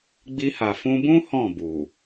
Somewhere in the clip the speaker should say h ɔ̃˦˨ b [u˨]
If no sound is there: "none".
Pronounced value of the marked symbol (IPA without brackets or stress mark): u˨